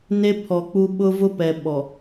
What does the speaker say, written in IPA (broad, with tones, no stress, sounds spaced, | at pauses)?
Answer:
n e˦ pʰ ɔ˨ k͡p u˦ ɓ ʊ˦ v ʊ˦ p ɛ˨ ɓ ɔ˨